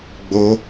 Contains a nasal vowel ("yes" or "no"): no